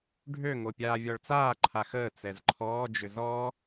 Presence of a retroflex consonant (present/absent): present